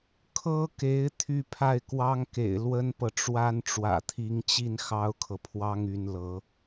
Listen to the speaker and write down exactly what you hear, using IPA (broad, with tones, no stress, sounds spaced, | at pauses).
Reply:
kʰ ɤ˥ k e˧˥ ɪ̯ t̪ʰ y˥˧ pʰ a˥˩ ɪ̯ k w ɑ˥ ŋ k ḛ˨˩ ɪ̯ l w ə˥ n p ɤ˨ ʈ͡ʂ w a˥ n ʈ͡ʂ w ä̰˨˩ t̪ʰ i˧˥ ŋ t͡ɕ i˥˩ n x ɑ˥ ʊ̯ kʰ ɤ˨ pʰ w ɑ˥ ŋ y˧˥ n l ɤ˧˥